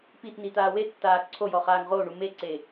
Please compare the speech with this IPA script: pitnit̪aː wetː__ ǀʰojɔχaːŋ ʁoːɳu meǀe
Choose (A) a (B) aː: B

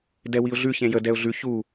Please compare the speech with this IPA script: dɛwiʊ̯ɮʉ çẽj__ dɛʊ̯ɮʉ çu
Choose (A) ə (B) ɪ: A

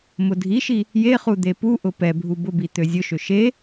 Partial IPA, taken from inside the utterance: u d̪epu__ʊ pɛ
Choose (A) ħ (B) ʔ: B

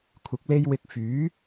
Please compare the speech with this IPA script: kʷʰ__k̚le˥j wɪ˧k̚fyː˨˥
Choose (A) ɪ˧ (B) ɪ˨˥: B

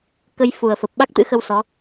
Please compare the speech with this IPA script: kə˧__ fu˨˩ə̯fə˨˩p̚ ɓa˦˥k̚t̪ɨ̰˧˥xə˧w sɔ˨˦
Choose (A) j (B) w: A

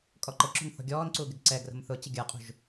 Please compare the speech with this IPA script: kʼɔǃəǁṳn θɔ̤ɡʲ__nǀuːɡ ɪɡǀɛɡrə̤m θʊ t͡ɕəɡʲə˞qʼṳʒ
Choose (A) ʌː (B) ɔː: B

